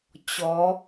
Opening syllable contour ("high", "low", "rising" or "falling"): rising